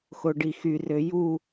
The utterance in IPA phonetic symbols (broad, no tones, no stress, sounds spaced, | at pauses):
x o ɖ i x y r ø j u